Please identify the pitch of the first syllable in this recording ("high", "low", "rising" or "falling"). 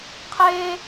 high